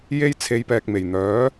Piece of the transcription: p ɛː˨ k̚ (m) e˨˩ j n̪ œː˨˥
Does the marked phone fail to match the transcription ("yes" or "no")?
no